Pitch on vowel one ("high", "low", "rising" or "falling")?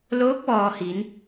rising